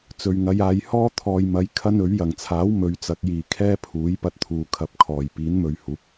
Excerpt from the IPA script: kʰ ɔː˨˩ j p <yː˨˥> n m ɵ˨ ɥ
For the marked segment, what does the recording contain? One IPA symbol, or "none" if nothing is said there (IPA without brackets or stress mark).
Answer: iː˨˥